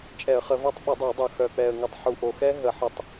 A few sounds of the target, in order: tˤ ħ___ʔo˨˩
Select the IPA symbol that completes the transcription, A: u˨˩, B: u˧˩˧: A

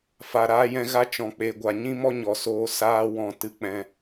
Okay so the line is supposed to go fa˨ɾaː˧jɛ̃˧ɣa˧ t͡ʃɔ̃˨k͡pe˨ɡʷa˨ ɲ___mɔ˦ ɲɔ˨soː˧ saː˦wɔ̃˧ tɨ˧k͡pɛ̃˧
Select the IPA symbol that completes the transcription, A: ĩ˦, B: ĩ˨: A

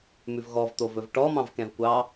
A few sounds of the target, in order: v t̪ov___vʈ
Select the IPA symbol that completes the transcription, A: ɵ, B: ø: A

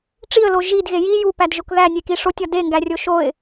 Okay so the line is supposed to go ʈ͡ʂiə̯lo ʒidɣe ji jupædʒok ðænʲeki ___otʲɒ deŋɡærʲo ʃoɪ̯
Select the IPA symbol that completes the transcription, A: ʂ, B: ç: A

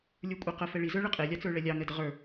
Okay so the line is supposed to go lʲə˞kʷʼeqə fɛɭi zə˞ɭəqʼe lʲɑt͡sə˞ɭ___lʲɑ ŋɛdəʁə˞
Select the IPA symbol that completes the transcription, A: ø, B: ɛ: B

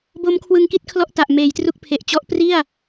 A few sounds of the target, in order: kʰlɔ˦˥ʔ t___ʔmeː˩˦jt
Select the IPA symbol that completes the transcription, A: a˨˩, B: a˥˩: A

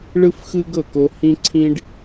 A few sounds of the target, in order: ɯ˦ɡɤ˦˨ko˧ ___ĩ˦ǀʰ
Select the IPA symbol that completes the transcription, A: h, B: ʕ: A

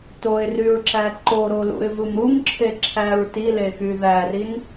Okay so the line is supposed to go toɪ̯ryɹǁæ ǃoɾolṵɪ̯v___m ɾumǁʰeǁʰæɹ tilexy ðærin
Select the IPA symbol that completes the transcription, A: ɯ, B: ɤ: A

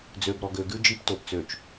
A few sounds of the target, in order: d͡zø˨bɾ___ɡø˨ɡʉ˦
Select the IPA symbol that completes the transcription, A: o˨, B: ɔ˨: B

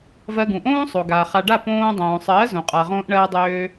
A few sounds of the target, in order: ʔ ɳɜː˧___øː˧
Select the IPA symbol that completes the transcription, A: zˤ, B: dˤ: B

